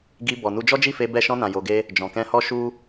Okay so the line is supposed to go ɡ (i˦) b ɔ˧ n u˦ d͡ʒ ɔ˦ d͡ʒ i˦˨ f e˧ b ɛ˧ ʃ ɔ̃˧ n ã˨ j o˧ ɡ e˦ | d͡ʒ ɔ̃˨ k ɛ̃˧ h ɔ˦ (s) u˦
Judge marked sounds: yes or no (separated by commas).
no, no